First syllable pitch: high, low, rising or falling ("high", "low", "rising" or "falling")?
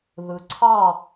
rising